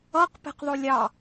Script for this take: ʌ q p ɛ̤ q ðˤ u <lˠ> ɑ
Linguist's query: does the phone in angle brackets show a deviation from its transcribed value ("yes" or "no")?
yes